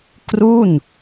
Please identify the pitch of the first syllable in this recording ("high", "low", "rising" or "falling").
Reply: falling